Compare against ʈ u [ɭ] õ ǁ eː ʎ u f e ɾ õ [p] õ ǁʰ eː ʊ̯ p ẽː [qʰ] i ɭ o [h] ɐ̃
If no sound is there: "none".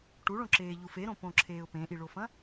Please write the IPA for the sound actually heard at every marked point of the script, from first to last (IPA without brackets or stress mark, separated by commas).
ɭ, p, ʔ, f